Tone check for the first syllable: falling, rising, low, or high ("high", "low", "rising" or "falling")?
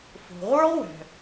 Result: low